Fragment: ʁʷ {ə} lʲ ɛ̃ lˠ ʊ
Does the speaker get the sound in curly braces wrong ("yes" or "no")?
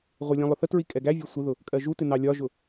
yes